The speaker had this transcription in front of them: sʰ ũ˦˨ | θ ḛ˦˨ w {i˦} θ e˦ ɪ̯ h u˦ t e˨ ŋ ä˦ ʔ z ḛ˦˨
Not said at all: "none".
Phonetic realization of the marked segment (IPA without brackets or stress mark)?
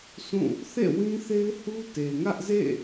ĩ˦